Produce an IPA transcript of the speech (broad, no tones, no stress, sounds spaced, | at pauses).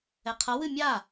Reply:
ɛ qʰ ʌ w ɨ mʲ a